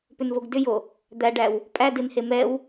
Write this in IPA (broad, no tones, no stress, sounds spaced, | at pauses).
p ʏ n v o ɡ d ʏ j o | d̪ æ ɖ æ w | pʼ æ d ɪ n h e m ɛ w